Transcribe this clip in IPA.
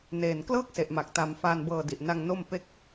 n eː˨˩ n k l ɤː˥˩ k̚ s e˨˩ ʔ m a˨˩ k̚ t a˨˩ m f aː˧ n b ɤː˧ d i˨˩ ʔ n a˧ ŋ n o˥˩ m p e˥˩ k̚

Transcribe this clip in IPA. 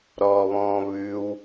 ɾ ɔ β ɔ̃ː β ʉ w

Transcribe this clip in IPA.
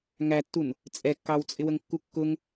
ŋ æ tː u n | t͡sʼ ɛ kː ɑ w t͡sʼ ɪ w ə ŋ kː u kː ʊ ŋ

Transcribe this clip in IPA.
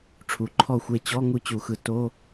ʈ͡ʂʰ u˩˧ ǃʰ ɔ˥˩ xʷ e˥˩ t͡ɕ ɔ˧˥˧ ŋ u˥˩ t͡ɕ u˧˩˧ x ɯ˩˧ t o˧˥˧

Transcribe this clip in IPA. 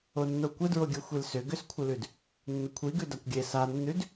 o nː o kʷ ə d ɹ o ɡʲ ə xʷ i l s ʏ ɡ ʏ s kʷʰ ɪ l ʉ d | nː ə kʷʰ i ɡ ʉ d a kʷ ɡʲ e s a nː ʉ d

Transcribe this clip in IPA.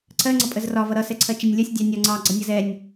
ǀʰ ɜ ŋ͡ǀ ʌ pʼ ə z r ɒ v ʌ ɾ ʌ s ɛ ǀʰ ɜ t͡ʃ ɛ nʲ lʲ ɒ sʲ dʲ ɑ nʲ ɒ ŋ͡ǀ ɑ ɡ͡ǀ ʌ nʲ ʌ z ɛ nʲ

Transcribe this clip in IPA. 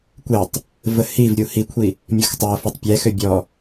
kʷ e tˤ | v ə h i v ɾʲ u h i kʷʰ i | mʲ ɔ x tˤ ɛ ɐ̯ f ɔ tˤ pʲ ɛ x ø bʲ ɔ

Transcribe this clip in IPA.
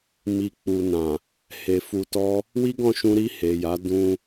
m i˨ k͡p u˨ n ã˨ | h e˨ f u˧ t ɔ˦ | w i˦ ɡ ɔ̃˦˨ ʃ ũ˧ ɾ i˧ h e˨ j a˨˦ d ũ˧

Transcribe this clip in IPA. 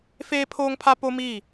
f eː˦ pʰ oː˦ ŋ pʰ a˦ p o˦ m iː˦˨

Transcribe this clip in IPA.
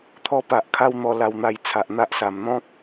t̪ʰ ɔ˧ p a˨ ʔ kʰ a˧ w n̪ ɔ˨˩ l a˨˩ w n̪ a˨˩ j t͡sʰ a˨ ʔ n̪ a˦ ʔ s a˨˩ m n̪ ɔ̃˦ k̚

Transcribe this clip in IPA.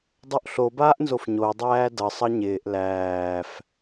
dˤ o ʔ ɬ o b aː ʔ n z o f ɲ o dˤ æː d ʌ sˤ ʌ ɲ ɪː ʔ l æː f

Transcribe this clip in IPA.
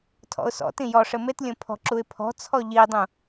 tʰ ɔ̰ ʊ̯ s ɔ̰ t ĩ j ɔ ʂ ɘ m e t lʲ õ pʰ ɔ̤ ǁ u ɪ̯ pʰ ɔ̤ t͡sʰ ɔ ʎ i dˤ ũ

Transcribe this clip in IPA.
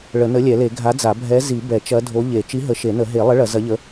ɭ ə˨˩˦ n ə˨˥ lʲ ɛ˨˩˦ l e˨˩˦ ɡʱ a˨˥ d͡z a˨˩˦ bʱ ɛ˨˥ z i˨˩˦ b ɛ˨˩˦ t͡ʃ ɐ˨˥ dʱ o˨˥ ʎ e˨˩˦ t͡ʃ i˨˥ ɦ ə˨˩˦ ʃ e˨˩˦ n ə˨˩˦ ɦ e˨˩˦ lˠ ə˨˥ ɭ ɐ˨˩˦ z ɐ˨˥ ʎ ə˨˥

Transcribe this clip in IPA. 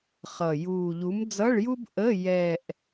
χ ʌ˨˩ j uː˨˩ ʎ u˨˥ m d͡z ʌ˧˥˧ ɭ j u˥ b ʔ ə˧˥˧ j ɛ˦˨ ʔ

